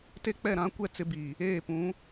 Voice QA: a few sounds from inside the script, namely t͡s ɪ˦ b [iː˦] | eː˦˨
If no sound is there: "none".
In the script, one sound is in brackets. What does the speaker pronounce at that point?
iː˨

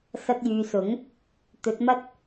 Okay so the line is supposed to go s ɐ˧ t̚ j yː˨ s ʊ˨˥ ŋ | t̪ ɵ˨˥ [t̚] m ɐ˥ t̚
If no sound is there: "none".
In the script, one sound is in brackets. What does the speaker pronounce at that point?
t̚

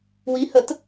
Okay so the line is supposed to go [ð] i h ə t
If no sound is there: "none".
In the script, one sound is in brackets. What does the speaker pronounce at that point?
w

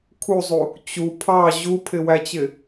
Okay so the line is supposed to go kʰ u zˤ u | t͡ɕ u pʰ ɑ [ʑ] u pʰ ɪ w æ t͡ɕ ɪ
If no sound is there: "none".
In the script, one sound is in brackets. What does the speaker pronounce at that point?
ʑ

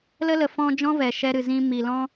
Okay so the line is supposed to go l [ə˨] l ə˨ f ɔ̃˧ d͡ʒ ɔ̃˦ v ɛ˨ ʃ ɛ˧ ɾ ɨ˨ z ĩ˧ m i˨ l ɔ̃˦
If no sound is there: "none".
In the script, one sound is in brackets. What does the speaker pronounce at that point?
ə˦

